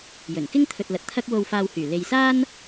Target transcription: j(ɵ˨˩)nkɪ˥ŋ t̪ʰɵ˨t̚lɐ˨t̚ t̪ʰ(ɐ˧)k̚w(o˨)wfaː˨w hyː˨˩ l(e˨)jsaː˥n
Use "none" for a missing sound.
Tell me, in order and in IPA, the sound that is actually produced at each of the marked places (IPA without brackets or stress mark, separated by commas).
ɵ˨˩, ɐ˧, o˨, e˨